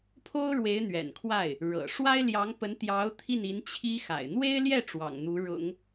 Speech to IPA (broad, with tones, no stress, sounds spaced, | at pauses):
pʰ o˥ ʊ̯ ɻ w e˧˥ ɪ̯ n̪ ɥ ɛ̰˨˩ n kʰ w a˥˩ ɪ̯ | ɻ ɤ̰˨˩ ʂ w a˥ ɪ̯ l j ɑ˧˥ ŋ p ə˧˥ n t̪ j ɑ˧˥ ʊ̯ t̪ʰ i˥˩ n i˧˥ n t͡ɕʰ i˥ x a̰˨˩ ɪ̯ n̪ w e˥ ɪ̯ l j ɛ˥˩ ʈ͡ʂ w ɑ̰˨˩ ŋ n̪ u˧˥ ɻ ʊ̰˨˩˦ ŋ